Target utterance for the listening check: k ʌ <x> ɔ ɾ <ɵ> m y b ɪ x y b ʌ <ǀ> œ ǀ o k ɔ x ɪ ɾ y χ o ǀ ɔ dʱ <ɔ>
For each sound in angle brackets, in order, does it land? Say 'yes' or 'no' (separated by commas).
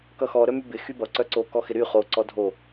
yes, no, yes, no